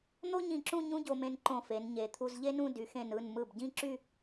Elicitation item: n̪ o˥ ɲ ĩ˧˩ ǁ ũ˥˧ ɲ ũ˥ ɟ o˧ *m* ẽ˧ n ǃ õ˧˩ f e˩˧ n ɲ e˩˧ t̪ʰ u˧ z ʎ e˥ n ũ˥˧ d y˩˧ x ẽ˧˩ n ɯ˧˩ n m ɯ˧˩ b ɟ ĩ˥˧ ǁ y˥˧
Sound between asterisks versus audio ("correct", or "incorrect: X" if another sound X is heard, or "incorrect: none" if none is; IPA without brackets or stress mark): correct